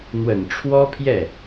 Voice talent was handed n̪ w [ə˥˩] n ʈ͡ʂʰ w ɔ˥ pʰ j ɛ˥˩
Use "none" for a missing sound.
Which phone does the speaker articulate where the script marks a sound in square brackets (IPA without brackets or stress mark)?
ə˨˩